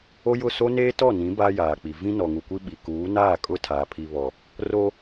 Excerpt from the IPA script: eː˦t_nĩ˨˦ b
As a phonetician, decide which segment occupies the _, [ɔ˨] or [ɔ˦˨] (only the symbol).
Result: ɔ˦˨